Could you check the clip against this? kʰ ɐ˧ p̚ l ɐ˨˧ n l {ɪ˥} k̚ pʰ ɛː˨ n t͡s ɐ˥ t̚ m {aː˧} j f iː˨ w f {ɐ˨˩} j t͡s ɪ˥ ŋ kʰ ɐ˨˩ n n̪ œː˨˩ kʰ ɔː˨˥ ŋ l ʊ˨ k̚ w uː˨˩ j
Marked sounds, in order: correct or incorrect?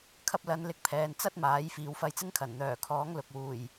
incorrect, incorrect, incorrect

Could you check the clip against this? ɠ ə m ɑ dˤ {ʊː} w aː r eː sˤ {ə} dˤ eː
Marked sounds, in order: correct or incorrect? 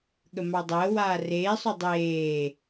incorrect, incorrect

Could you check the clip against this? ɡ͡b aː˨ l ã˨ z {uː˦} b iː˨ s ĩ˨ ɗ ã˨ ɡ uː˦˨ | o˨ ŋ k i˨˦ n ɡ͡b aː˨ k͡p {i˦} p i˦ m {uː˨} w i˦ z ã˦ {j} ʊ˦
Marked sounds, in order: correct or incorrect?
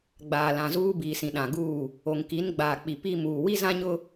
correct, incorrect, correct, incorrect

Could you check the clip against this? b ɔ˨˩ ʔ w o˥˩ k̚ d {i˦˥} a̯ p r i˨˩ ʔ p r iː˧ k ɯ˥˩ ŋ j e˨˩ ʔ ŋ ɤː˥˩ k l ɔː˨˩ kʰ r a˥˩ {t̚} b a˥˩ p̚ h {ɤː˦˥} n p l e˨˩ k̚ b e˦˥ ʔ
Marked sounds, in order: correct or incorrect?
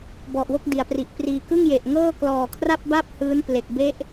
incorrect, incorrect, incorrect

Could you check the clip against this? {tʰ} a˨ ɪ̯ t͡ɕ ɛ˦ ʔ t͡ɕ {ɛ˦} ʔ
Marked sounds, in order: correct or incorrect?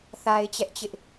incorrect, incorrect

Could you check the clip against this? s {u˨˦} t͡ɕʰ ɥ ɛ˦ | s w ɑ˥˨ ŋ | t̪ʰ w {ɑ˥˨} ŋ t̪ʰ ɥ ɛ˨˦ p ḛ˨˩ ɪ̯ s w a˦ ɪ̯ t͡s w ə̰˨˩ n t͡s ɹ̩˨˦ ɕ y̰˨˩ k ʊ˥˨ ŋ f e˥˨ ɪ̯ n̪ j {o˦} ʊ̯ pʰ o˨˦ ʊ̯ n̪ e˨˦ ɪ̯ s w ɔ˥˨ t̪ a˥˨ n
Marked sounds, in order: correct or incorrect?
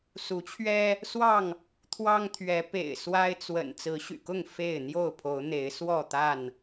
correct, incorrect, incorrect

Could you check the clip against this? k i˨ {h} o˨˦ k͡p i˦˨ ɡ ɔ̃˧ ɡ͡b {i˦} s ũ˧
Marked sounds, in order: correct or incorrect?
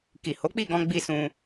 correct, correct

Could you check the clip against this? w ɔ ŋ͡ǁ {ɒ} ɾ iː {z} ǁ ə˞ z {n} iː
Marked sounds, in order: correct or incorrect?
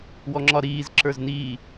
correct, correct, correct

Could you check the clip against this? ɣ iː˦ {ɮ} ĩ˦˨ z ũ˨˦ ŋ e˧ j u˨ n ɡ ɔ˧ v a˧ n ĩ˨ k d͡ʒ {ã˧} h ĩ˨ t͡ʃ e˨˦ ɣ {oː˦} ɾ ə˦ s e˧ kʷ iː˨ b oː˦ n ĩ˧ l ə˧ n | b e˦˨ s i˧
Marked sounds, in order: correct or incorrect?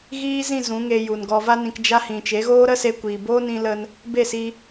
incorrect, incorrect, correct

